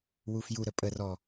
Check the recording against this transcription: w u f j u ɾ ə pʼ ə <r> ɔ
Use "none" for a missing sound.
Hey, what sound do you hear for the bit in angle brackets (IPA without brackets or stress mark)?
r